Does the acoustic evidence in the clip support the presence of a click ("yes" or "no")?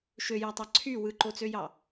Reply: yes